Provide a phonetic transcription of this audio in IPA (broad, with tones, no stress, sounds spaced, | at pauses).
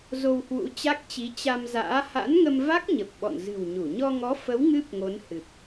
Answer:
z o˧ w h w ṵ˧˥ t͡ɕ a˦˥ k̚ t͡ɕ i˨˦ t͡ɕ a˧ m z a̰ː˧˥ h a̰˧˥ n ŋ ə˧ m v a˦˥ k̚ ɲ ə˨˩ p̚ ɓ ɔ̰˧˨ n z ɨ̤˨˩ w ɲ u˧˩ ɲ ɔ˧ ŋ ɔ˨˦ f ə˨˦ w ŋ ɨ˦˥ p̚ ŋ o˨˦ n h ɨ˨˩ p̚